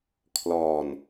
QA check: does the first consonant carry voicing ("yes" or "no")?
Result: no